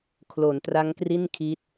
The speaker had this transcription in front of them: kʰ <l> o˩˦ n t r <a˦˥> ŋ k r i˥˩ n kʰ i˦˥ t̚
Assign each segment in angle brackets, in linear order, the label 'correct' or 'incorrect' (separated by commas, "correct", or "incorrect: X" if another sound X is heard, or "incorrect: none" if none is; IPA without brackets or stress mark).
correct, correct